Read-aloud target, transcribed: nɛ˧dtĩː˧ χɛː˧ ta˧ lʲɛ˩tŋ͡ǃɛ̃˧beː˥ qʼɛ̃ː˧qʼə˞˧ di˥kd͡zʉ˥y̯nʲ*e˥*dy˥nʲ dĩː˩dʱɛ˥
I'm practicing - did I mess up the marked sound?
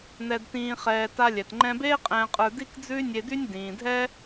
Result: yes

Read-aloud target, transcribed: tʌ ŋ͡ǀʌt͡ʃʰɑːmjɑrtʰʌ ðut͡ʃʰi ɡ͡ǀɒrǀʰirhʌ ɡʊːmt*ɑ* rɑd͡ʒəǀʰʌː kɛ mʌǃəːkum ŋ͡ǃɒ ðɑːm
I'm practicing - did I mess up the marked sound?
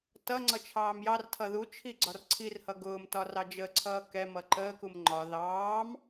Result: yes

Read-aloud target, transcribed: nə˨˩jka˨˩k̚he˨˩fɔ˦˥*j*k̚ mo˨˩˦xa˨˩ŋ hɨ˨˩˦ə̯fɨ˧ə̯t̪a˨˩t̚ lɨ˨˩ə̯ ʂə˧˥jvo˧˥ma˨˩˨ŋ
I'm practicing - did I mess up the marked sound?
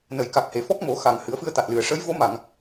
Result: yes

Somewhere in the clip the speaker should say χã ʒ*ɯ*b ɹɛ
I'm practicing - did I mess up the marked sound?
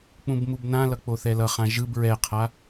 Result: no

